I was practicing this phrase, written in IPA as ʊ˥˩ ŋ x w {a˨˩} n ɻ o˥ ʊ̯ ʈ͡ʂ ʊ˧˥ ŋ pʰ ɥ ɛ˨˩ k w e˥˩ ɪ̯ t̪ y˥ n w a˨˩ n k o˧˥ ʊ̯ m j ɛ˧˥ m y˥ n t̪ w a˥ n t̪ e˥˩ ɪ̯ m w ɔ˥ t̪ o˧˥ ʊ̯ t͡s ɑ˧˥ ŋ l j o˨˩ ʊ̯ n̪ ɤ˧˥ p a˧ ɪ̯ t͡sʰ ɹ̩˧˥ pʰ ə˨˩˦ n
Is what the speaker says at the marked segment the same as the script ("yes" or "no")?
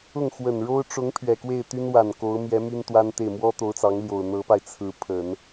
no